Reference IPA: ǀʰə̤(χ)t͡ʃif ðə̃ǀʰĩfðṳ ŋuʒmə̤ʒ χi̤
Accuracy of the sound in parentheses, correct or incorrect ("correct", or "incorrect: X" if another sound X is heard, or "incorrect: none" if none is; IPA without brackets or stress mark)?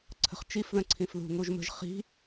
correct